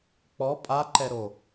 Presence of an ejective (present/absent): present